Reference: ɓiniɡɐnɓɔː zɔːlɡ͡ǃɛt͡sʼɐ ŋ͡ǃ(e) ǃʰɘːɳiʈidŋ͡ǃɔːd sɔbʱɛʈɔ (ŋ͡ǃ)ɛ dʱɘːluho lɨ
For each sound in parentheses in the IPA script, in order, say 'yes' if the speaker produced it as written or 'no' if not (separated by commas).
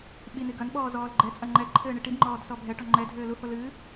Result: no, yes